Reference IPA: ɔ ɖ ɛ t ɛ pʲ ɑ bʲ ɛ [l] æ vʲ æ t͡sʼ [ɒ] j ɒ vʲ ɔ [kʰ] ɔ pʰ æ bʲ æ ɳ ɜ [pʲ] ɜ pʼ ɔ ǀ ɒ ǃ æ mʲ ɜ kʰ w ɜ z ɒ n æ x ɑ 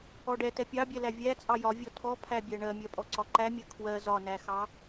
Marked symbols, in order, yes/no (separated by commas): yes, no, no, no